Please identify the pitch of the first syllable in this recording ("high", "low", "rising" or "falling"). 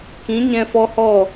rising